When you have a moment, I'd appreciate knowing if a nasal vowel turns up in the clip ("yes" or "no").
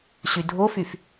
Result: no